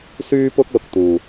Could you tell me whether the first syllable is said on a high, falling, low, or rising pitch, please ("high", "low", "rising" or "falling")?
high